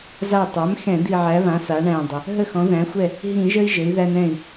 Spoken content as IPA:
za˧˩tˤæ˩˥mxɛ̃˧˩˧ d̪i˧˩ʕæ˩˥ βã˩˥ sa˩˥ɳæ̃˧˩dˤə˩ | ɦə˥˩xɔ̃˩˥ðæ̃˩˥xʷɛ˥˩ | ɦĩ˧˩˧ʒə˦i̯ ʒɘ˩˥i̯ðæ˦n ɛ̃˧˩i̯

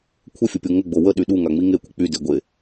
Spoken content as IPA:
kʷʰəfʲəpʲo ŋəɡ͡bo wəɗy ɗuŋaŋ͡mi ŋekʷə k͡pyde ɡʷe

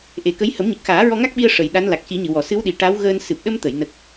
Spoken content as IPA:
ʔe˨˩˦kə˧˥j hə˨˩˦mɲə˨˩k̚xaː˨˩˦ ɹɔ˧ŋa˦˥k̚ɓi˧ə̯ ʂə˨˩˨j ɗa˧˥nla˨˩k̚ci˨˩˦ɲɨ˨˩˨ wɔ˨˩˨sɨ˧˥wɗi˨˩ ʈa˧˥w ɣəː˧n sɨ˨˩p̚ɗə˧mt̪ə˨˩˨j nə˨˩k̚

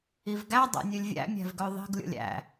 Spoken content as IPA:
ivɡæ dˤæ̰nʲʉlʲvʲæ̰ mʲæ̤vɡœðˤi̤ɡ lʲo̰lʲæ̰

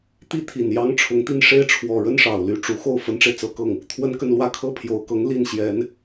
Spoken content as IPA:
t̪i˥t̪ʰi˨˩n jɑ˧˥ŋ ʈ͡ʂʰʊ˧˥ŋt̪i˥˩n ʂe˥ɪ̯ʈ͡ʂʰwɔ˨˩ɻə˥n ʂɑ˨˩ʊ̯ly˧˥ʈ͡ʂu˧˥ xo˥˩ʊ̯fə˧˥nʈ͡ʂe˧ɪ̯ t͡sɤ˧˥kɤ˥˩ŋ | t̪ʰwə˥nkə˥˧nlwä˥˧ kʰɤ˥˩pʰjo˨˩ʊ̯kɤ˧˥ŋ li˥˩n ɕjɛ˧˥n

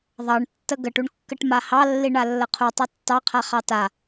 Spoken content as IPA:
ðˤɑɳ tːəɡəʈuɳkːəʈ mahɑlːi ɳalːəqʰu tˤatːɑqʰaχɑ ta

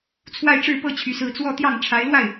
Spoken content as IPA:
t͡sʰwa˥˧ɪ̯ʈ͡ʂɻ̩˥˧pɤ˥˩ t͡ɕʰy˧˥sɹ̩˥˧ t͡swɔ˥˧t̪jɑ˥˩ŋ ʈ͡ʂʰa˧˥ɪ̯lwa˥˩ɪ̯

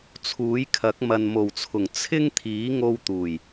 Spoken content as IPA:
t͡sʰuː˨˥jkʰɐ˨˥k̚ mɐ˨nmo˨˩wt͡sʰʊ˨˩ŋ t͡sʰɪ˥ŋ t̪ʰiː˨˥ŋo˧w t̪uː˨˩j

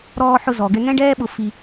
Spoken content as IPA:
ɾɔː˧ħʊ˧ zɔ˨ɡɛ˧ ŋɛ̃˦ɖɛː˦ɓʊ˧fi˧

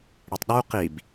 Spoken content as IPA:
ɽitˤɗu qib

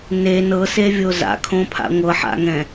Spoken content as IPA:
ne nɤsevʲo za̰kʰõpʰa̰ ŋʷɤħa̰ŋɛ̃

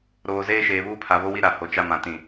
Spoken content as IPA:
ɾoː˨ zeː˦ʃeː˨βuː˦pʰa˨ βo˦wi˦ɾa˨ ho˨t͡ʃa˦ mã˨tĩ˨

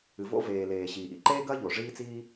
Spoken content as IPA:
ɨ˩vo̰˥ veː˩ leː˩ ɕiː˩ʔḭ˩ǃeː˥ɡɐː˥ ʎo˩ʐiː˥t͡siː˥

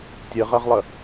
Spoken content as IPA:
tʲəʁɐʁlˠə

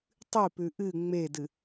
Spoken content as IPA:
tˤɨpʉ ʔɨ ŋ͡medɨ

